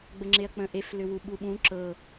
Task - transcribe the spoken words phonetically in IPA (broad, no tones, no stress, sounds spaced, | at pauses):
ɡ͡b ə ŋ͡ǁ e ɐ̯ k͡p ə̃ ʔ e f l ʏ w u ɓ u ɓ ũ ǁ ɤ